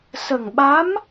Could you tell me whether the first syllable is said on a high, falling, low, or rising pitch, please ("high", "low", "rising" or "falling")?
low